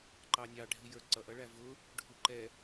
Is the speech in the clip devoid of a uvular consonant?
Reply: yes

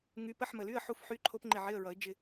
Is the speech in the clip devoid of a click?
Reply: no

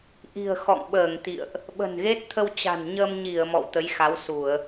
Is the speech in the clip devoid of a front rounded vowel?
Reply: yes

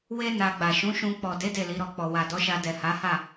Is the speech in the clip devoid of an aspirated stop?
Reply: yes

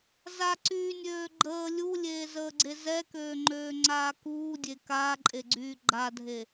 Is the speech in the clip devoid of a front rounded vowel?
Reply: no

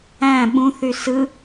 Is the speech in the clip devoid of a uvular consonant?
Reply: yes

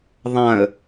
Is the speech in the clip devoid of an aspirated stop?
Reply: yes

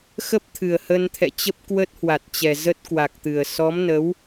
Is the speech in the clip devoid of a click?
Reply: yes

